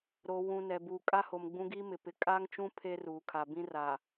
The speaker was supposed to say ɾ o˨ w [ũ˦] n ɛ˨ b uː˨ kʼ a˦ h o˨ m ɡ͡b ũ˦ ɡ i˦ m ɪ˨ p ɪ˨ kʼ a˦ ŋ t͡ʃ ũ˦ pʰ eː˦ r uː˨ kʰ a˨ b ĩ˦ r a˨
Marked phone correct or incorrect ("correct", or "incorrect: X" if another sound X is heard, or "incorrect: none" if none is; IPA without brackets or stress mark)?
incorrect: ũ˨